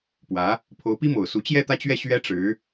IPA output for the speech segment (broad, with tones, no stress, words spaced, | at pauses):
pwä˧˥ | pʰo˧˥ʊ̯pi˥mo˨˩ʊ̯su˧˥ t͡ɕjɛ˥˧t̪ä˥˧t͡ɕɥɛ˥˩ ɕɥɛ˥ʈ͡ʂɻ̩˧˥